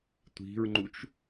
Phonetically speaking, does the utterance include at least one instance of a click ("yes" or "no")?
yes